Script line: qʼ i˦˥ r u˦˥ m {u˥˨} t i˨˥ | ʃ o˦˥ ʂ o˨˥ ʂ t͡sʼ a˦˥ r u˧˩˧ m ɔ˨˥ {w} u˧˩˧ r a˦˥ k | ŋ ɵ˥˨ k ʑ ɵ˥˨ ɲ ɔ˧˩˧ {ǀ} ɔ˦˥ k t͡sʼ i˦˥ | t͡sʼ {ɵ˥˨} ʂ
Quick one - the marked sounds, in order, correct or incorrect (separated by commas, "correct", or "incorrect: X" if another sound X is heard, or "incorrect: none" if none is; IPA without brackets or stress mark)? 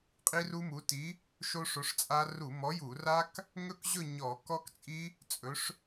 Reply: incorrect: u˨˥, incorrect: j, incorrect: k, incorrect: ɵ˨˥